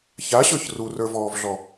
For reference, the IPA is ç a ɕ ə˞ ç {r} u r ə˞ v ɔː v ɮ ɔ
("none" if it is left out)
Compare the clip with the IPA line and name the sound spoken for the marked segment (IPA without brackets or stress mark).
r